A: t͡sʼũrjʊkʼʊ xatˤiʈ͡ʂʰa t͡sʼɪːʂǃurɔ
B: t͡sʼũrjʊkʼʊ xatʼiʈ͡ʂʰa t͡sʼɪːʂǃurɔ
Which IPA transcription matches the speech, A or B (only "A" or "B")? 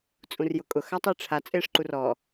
A